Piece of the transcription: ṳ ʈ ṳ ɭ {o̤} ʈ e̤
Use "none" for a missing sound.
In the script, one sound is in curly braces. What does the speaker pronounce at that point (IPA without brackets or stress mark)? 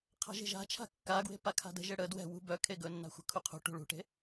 ṳ